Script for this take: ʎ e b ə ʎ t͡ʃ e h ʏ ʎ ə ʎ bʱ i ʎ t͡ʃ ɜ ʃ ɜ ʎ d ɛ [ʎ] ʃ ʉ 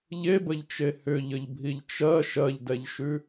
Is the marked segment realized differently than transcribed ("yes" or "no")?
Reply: no